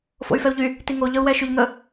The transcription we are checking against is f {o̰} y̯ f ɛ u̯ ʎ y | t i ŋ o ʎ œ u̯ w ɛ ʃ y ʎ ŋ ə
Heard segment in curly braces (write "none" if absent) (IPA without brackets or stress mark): o̰